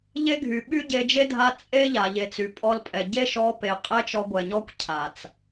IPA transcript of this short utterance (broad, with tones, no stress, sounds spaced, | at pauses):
ʎ e˦ ɡʱ y˨ ɓ y˦ ɟ e˧ d͡ʒ e˦ dʱ a˧ t͡sʼ e˦ ʎ a˨ ʎ e˨ t͡s y˨ pʼ ɔ˧ l pʼ ɛ˨ ɟ e˦ ʃ ɔ˧ p e˨ qʼ ɛ˦ t͡ʃ ɔ˧ ɡʷ ɛ˨ ɲ ɔ˦ kʷ cʰ a˨ t͡s